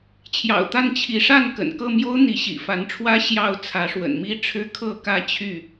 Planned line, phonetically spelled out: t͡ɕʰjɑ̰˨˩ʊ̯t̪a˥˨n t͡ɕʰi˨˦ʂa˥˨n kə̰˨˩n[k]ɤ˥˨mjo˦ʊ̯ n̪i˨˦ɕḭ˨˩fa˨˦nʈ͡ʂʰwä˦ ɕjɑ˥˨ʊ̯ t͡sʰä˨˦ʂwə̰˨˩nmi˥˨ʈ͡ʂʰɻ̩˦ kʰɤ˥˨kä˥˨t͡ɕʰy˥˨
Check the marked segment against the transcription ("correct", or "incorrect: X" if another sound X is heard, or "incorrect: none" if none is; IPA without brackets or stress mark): correct